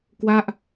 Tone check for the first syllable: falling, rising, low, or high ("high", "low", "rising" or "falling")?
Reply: falling